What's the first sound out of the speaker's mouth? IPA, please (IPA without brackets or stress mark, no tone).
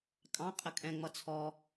kʼ